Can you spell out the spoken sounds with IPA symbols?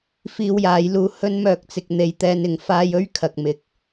f iː˧ w j aː˨˧ j l uː˧ h ɵ˥ n m œː˧ k̚ t͡s ɪ˧ k̚ n̪ e˧ j t̪ ɛː˧ n ɪ˨˧ ŋ f aː˧ j ɵ˥ ɥ kʰ ɐ˨ k̚ m ɪ˨ k̚

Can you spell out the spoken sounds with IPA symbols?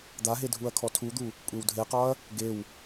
d̪ a ɦ e dʱ u ɐ̯ kʰ ɔ tʰ u d̪ u | kʷʼ e w dʱ e q ɒ ɐ̯ | ɡ e w

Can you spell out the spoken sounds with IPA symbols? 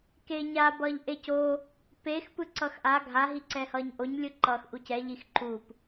k e ɲ a b ʌː ʎ ʔ e c o | p e x p ɯ ǀ ʌ x ʔ a ɡʱ a ɦ i ǀ ɛ h ʌː ɲ ʔ o ɲ lʲ ɯ ǃ ʌː x ʔ u c ɛ ʎ i x ǃ u p

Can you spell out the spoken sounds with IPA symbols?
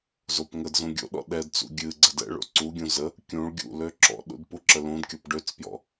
z o p ŋ ə d z ũ ɡʲ o̰ ɗ ɔ̰ ɗ ɛ d t͡s ṵ ɡʲ ɨ ɡ͡ǀ ə d ɛ̰ ɭ o̰ ǀ u ɡʲ ũ z ə | kʲ ũ ɭ ɡʲ ṵ l ø ǁ ɔ̰ ɗ ṵ d p u ǁ ə l ũ d kʲ ɔ p ɖ ø t͡s p j ɔ̰

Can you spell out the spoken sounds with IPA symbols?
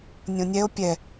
nʲ õ nʲ ɛ o̯ pʲ ɛ

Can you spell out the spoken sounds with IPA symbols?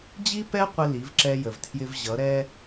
d͡ʑ i˦ p ɛ˦ qʷ ɪ˦ l i˨˦ v ǁ ɛ˦ j ə˨ v tʰ j ɪ˦ v ʑ ʌ˨˦ ɾ ɛ˦

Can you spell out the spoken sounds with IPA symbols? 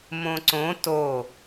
m õ ǀ õ t o

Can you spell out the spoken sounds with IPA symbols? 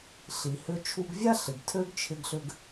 ɬ i˩ h ʏ˧ t͡ʃʰ u˧ ɡ vʲ a˥ ɬ ɪ˩ ɡ tʰ ø˥ ɡ t͡ʃʰ ɪ˥ ɡ ɬ ʏ˥ ɡ

